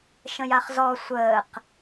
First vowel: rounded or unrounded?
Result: unrounded